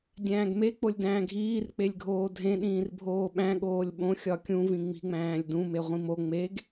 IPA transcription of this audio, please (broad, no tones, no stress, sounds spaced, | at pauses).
dʲ æ̃ː ɡ m e k͡p o lʲ d æ̃ː ɡʱ iː r k͡p e lʲ ɡʱ oː dʱ ẽ ɗ ĩː r bʱ oː ɓ æ̃ ɠ oː lʲ ɓ õ xʲ ɒ kʲ ũ v ĩ ŋ͡m i̤ ŋ͡m æ̃ː lʲ d ũ m e ʁʷ ĩ m o ŋ͡m e ɡ